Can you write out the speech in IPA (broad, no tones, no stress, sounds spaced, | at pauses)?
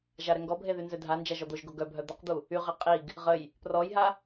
ʒ a ɾ ɛ ŋ ɡ ɔ bʱ e ð y n z ø dʱ a n d͡ʒ a ʒ ɔ d̪ o ʒ ɡ o ɡ œ bʱ œ d̪ ə q d̪ u | y ʁ e qʼ i ɡ | ʁ ə j | p r ɔ j ɦ a